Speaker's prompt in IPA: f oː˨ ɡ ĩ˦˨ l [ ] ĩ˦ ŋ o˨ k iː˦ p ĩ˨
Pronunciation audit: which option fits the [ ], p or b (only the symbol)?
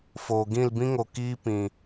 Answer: b